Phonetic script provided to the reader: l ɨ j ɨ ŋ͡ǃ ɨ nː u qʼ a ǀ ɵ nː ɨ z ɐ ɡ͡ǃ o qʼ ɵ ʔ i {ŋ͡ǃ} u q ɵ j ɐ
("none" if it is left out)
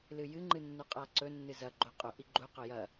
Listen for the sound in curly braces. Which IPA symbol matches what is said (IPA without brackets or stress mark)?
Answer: ɡ͡ǃ